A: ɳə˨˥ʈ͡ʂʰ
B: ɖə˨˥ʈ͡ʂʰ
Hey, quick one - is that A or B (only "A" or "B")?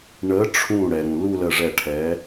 A